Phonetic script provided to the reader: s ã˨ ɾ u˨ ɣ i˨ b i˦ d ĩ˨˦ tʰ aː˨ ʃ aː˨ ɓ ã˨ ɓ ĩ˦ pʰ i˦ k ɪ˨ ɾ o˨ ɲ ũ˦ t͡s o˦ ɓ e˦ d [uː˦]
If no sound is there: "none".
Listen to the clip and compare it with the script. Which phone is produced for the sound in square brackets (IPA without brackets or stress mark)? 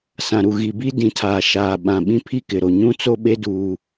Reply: uː˦